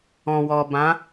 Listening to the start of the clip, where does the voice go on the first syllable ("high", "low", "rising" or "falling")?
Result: low